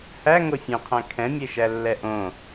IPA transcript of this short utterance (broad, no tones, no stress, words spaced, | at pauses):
hæ ŋofʲẽqʰæ̃ kʰɛ̃mʲeʃælːɛ ʔõ